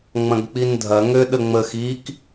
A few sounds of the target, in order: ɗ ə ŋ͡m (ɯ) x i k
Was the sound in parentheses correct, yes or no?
no